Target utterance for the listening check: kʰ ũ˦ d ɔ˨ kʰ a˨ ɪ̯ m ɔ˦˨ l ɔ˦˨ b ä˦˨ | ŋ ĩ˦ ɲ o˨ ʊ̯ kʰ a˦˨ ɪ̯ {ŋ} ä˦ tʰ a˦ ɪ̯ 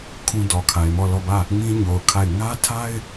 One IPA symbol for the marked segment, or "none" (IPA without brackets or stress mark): ŋ